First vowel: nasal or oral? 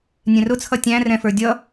nasal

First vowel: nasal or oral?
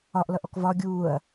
oral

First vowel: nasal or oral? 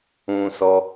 nasal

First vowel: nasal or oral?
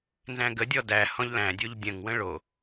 nasal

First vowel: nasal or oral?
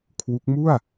oral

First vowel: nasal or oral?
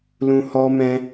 nasal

